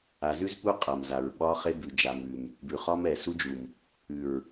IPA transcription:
a˨zʉ˦zpu˦ qʼa˨mza˨ɹɓɒ˦ χe˦ bʉ˨d͡ʒa˨mʉ˨m | bʉ˨χɒ˦mɛ˨ su˦d͡ʒu˨m | ʉ˨ɹ

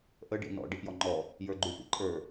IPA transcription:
ʔə ɖḭnɔ̰ ɖipjɔŋ͡ǃɔ | jə˞ɡ͡ǃyfḭǃʼə˞

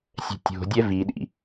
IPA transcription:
sʲɛ̤tʲo̤dʲɛ viɗḭ

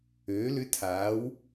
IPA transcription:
øː˩˧lʏ˨˥ tʰaː˩˧w

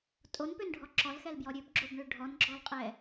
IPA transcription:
tʼonpønɖʱɔ ǁɔlxɛlbjɔ ɾʲøbɡ͡ǁobɳø ɖʱɔnɡ͡ǁɔlqʼɛ

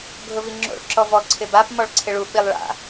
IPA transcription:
ɡʱʊviŋ͡ǁo̰ɭ ǁɔvɔ ǀʰɪbap mɔɭǀʰɪɭu ɓilˠɭa̰

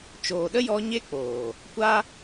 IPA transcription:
t͡ʃoː˨ɗə˦jɔ˧ ɲe˦ k͡poː˨ | kʷa˦

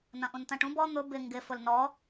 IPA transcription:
nɐ̃ʔũntɐ̃ʈũb ɔ n̪ʊ bɪ ŋɡɪ fʊlnɔ

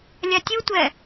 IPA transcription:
lʲatʲutʷɛ

